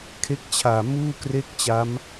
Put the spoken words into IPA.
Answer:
kʰ e˦˥ k̚ t͡ɕʰ aː˨˩ m uː˥˩ k r e˥˩ k̚ t͡ɕ a˦˥ m

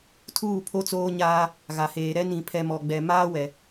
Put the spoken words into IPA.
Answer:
tʰ uː˦˨ pʰ o˦ t͡s oː˦ ɲ aː˦ | ɣ a˨ h eː˨ ɾ ɛ˦ n ĩ˨ pʰ ɛ˨ m ɔ˨ ɡ͡b ɛ˨ m aː˦ w ɛ˨

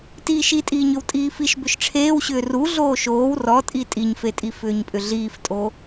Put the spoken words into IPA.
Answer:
t iː ʃ i tʼ iː ɲ ʏ w tʼ iː f i ʃ b ʏ ʃ ʈ͡ʂʰ eː w ɕ ʏː r u ɮ oː ʃ oː w r ɔ tʼ i tʼ i ɲ f e tʼ i f ʏː ɲ pʼ ʏ ɮ iː f tʼ o

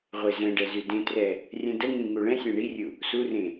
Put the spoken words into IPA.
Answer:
ʁʷ e z ɛ̃ ɖ ɛ z y d ẽ t r ɛ | rʲ ɛ̃ d ə ŋ ĩ ŋ u ɭ ɛ̃ sʲ ɛ̃ ɳ i rʲ u | s u r ẽ

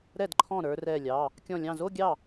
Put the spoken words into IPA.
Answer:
ɾ ɛ˥˩ d ǃʰ ɔ̃˥˩ ɾ ə˞˧ r ɛ˧˩ lʲ ɑ˩˧˩ | kʲ ɔ̃˧˩ lʲ ɑ̃˧˩ z o˥˧ ɡʲ ɑ˥˩

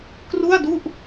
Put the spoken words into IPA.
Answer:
k r u˥˩ a̯ d u˥˩ ʔ

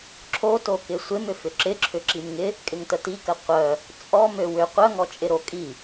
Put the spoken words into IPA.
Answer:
ǁʰ o t o k ɪ sʷ ɪ m ʏ f ʏ ǁ ɪ ǁʰ ʏ ǁ i m ŋ ɪ | kʼ ɪ ŋ t ə t i k ə qʷ œ | t͡sʼ ɔ m ø w ʏ qʷ œ ŋ ɔ t͡ʃʼ ɪ ɾ o kʼ i

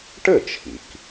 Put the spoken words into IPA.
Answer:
ʈ ɘ˥˩ t͡ʃʰ ḭ˩ k

